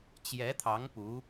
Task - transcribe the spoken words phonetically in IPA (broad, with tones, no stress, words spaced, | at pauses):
t͡ɕjɛ˧˥t̪ʰɑ˧˥ŋ pu˧˥